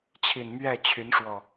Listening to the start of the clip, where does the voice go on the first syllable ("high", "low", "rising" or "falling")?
low